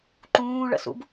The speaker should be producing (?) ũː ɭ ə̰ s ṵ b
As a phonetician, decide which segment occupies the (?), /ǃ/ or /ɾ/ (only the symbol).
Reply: ǃ